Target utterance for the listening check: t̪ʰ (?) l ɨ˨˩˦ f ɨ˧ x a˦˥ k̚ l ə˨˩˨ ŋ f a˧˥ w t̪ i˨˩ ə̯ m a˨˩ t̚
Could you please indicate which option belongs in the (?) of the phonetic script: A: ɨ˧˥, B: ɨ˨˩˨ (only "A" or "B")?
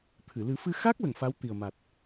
B